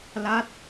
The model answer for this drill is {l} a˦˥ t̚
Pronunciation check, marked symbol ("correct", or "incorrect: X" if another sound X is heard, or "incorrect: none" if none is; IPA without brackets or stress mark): correct